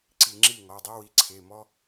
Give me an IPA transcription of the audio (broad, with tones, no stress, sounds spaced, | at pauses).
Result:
ǀ i˧˩˧ ŋ͡ǁ i˥˩ ŋ ɔ˩˧˩ dˤ i˦ w i˩˥ ǀʰ e˩˧˩ m ɔ˦